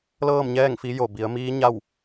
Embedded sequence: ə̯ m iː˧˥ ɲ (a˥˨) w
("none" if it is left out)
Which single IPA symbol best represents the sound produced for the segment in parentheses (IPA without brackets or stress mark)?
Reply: a˥˨